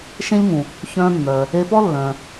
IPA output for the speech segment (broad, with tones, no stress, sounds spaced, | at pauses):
ʃ ẽ˥ ʎ ŋ ũ˩ | ç œ̃ː˧ mː œː˩ | e˧ p ɔ˥ lː œ̃ː˩